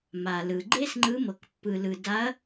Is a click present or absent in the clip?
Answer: present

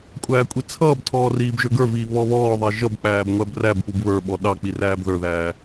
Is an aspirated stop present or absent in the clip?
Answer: present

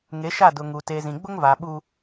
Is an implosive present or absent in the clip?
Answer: present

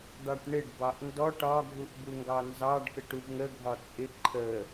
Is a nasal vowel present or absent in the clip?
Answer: absent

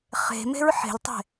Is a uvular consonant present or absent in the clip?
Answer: present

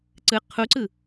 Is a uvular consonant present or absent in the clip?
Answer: present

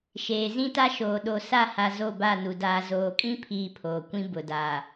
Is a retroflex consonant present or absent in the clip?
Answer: absent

